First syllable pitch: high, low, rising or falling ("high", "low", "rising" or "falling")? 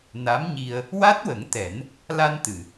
rising